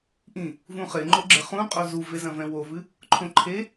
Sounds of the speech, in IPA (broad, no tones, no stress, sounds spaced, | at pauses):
ʔ ĩ | v ũ χ ɪ ŋ͡ǃ o ɡ͡ǁ ɪ χ ũ qʼ o z u v e z ɐ̃ v ɛ̃ w o v ɨ | ǃʰ õ ǃʰ e